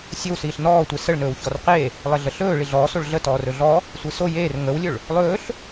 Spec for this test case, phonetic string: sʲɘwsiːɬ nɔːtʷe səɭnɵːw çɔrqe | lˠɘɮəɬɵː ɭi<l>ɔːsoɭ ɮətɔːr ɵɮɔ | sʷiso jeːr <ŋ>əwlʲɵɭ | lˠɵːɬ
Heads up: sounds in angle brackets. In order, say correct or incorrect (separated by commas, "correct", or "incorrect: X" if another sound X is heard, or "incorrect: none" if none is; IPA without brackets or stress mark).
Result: incorrect: ɮ, correct